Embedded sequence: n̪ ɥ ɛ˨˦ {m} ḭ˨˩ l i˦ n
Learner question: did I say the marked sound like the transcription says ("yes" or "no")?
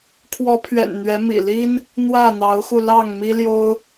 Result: yes